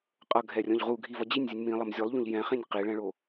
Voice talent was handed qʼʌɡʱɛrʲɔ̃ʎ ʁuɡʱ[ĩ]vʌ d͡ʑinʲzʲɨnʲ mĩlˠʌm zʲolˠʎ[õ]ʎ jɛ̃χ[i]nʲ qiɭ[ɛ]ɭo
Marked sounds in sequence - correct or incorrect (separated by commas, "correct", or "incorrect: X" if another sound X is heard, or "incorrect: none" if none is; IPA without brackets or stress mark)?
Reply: incorrect: i, correct, incorrect: ĩ, incorrect: ɛ̃